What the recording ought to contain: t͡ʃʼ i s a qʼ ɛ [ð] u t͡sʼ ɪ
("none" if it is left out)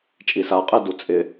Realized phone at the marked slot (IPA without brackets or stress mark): d